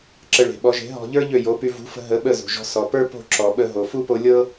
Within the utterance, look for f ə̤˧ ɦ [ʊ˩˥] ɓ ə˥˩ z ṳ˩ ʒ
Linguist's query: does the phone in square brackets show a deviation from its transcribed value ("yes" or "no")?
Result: yes